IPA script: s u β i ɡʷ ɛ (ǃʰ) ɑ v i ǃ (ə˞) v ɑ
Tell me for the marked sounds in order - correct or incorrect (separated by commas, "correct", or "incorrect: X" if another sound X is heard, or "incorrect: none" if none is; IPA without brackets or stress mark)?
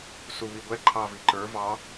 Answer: correct, correct